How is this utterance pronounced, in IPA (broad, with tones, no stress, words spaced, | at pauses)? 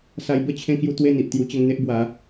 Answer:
sa˧jbə˥˧ t͡ɕʰẽ˥˧kju˥˧ t̪we˥˧n̪i˨ʔt̪ju˧ t͡ɕə˧ŋ n̪e˦ʔbwa˨˦